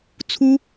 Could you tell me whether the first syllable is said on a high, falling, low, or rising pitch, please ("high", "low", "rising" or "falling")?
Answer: high